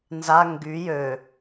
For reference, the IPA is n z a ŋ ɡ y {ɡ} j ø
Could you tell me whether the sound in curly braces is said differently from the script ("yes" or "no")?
yes